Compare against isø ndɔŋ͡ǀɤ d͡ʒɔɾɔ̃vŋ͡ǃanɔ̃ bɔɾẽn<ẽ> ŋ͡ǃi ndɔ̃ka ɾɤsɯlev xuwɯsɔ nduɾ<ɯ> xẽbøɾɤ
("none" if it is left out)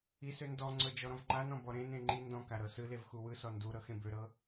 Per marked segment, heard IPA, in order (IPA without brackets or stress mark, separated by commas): ẽ, ɤ